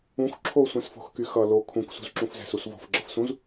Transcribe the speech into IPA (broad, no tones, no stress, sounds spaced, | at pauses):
ũ x ǁʰ o sʷ ɛ̃ s f o̤ x k y x ʌ l o kʰ ũ k s ṳ z ǁ ũ f z ɛ̤ s u s v o̤ f ɡ͡ǁ ʌ f s ũ z